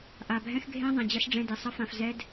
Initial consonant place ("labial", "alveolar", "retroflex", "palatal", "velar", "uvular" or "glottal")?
glottal